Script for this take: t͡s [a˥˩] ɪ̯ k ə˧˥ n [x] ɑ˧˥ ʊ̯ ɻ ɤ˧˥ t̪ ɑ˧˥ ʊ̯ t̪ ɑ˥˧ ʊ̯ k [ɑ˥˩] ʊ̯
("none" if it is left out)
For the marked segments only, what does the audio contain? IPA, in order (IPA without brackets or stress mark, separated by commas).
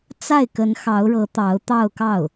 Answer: a˥˩, x, ɑ˥˩